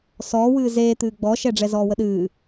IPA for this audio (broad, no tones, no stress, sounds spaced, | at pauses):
s ɔː w ɨː z eː t̪ ɨː ɡ͡b ɔ ʃ ɛ ɖ͡ʐ ɛ z ɔː w ə ɗ ɨː